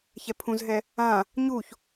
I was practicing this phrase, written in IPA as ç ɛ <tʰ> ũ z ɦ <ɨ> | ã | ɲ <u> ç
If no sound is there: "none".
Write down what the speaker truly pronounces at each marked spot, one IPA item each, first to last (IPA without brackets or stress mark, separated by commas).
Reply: pʰ, ɛ, u